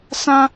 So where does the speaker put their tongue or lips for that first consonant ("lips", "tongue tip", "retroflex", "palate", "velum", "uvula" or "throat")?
tongue tip